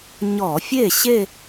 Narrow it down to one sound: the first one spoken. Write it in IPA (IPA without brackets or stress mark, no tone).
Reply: ɲ